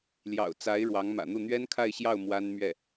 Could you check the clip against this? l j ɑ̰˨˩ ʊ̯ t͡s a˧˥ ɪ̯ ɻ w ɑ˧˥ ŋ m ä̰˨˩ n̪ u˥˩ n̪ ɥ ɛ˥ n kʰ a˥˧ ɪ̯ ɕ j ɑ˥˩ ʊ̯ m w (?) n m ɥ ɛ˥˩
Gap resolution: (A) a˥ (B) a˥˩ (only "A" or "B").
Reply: A